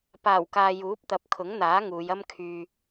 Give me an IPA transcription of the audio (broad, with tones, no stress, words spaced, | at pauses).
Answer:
paː˨˩wkaː˨ juː˨˥p̚t̪ɐ˨˥p̚ kʰʊ˨˥ŋn̪aː˨˥ ŋuː˨˧jɐ˥m kʰyː˧